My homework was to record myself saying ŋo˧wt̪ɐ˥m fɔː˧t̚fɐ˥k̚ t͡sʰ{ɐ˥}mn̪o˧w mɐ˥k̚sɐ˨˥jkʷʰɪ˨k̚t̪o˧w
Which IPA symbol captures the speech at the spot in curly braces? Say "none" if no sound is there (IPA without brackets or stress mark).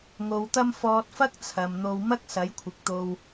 ɐ˨